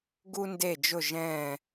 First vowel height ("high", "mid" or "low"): high